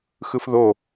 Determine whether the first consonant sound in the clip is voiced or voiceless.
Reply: voiceless